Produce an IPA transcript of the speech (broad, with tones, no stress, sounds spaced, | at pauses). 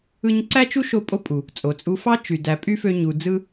ɯ˥ ɲ ǀ æ˥ t͡ʃ u˥ ʃ o˧ pʼ o˥ pʼ u˩ | t͡sʼ o˩ t͡sʼ u˧ f ɑ˥ t͡ʃ y˩ d æ˩ pʼ y˥ f ø˧ ɲ u˩ d͡z ɯ˥